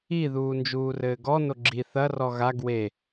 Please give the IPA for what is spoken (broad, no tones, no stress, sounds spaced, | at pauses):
i ð uː n d͡ʒ uː r ɘː ɡ ɔ n o ɡ͡ǁ i θ ɐ r ɔ ɣ a ɡ w e